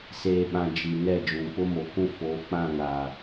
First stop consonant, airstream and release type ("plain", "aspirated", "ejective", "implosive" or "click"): implosive